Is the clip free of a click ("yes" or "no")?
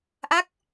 yes